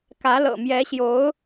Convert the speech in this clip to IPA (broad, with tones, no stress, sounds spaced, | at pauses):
k ä˧˥ l ɤ̰˨˩ m j ɛ˧˥ ɕ j o˧˥ ʊ̯